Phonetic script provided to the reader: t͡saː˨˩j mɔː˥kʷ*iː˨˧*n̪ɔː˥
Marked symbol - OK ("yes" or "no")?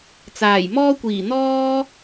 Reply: no